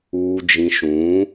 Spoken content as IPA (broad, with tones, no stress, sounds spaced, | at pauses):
uː˨ d͡ʒ ĩ˨ ʃ ũ˨˦